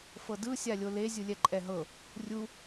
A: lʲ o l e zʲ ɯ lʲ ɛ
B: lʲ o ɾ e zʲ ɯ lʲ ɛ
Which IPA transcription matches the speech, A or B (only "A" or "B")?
A